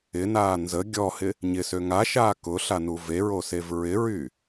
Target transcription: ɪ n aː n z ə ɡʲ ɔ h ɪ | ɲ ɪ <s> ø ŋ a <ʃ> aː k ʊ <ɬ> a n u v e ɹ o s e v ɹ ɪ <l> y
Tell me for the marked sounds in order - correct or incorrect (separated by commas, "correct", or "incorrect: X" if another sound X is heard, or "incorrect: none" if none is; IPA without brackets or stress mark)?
correct, correct, correct, incorrect: ɹ